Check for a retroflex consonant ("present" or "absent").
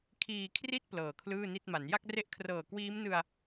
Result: absent